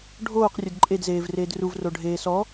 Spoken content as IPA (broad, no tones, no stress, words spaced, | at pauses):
ɖʱoːqrʲʊd ǃʼedzeːv reːdruvro ɖʱeːsɔ